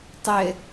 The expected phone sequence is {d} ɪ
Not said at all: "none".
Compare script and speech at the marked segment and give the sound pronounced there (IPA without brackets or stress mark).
tˤ